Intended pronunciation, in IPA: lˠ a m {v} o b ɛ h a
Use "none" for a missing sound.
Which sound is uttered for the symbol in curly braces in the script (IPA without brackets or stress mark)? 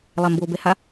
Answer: b